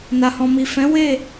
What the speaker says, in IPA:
n a˨ h ɔ̃˨ m i˨ f ɛ̃˨˦ w e˦˨

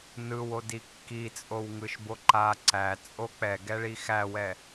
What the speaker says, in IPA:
n ɯ w o d i kː i t͡sʼ o w ŋ ɯ ʃ b o ǃ a ǀ æ t͡sʼ o k͡p ɛ ɡ ɛ ɭ i x æ w ɛ

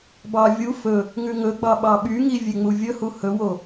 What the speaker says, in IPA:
b ɑ vʲ u f ɵ | ŋ ʉ ŋ ɵ ɡ͡b ɑ ɓ ɑ ɓ y ŋ i vʲ e ŋ͡m u vʲ ɵ h u h ɵ w o

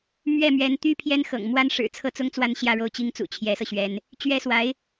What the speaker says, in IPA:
m ɥ ɛ˥˩ m ɥ ɛ˧˥ n t̪ y˥ pʰ j ɛ˥ n x ɤ̰˨˩ ŋ m w a˥ n ʂ ɻ̩˨˩ t͡sʰ ɤ˥˩ t͡s ʊ˥ ŋ t͡s w a˥˧ n ɕ j ä˥˧ ɻ o˥˩ ʊ̯ t͡ɕ i˥ ŋ t͡s ṵ˨˩ t͡ɕʰ j ɛ˧˥ s ɤ˧ ɕ ɥ ɛ˧˥ n | t͡ɕ ɥ ɛ˥ s w a˧˥ ɪ̯

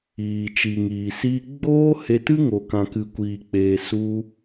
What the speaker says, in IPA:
iː˨ t͡ʃ i˨ ŋ iː˨ s iː˧ ɡ͡b oː˦ h e˧ t ɨ˦ ŋ o˨ k ã˨ k ɨ˨ kʷ iː˨ k͡p eː˨ s u˧

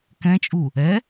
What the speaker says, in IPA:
k ɛ̃ t͡ʃʼ u | ɛ

